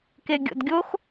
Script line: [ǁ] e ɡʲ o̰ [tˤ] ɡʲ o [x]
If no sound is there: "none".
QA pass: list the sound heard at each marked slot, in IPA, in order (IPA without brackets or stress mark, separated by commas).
k, d, x